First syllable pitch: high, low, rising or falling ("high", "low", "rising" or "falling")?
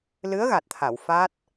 rising